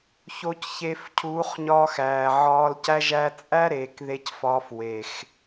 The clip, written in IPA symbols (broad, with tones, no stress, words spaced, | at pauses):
ço˧cçe˧fcʰuː˨˦χɲɒː˧x æː˨ʕɒː˧lcæ˦ ʒæ˧t͡sʼæ˦ɾeː˨k ðe˧cfɒː˧f we˨x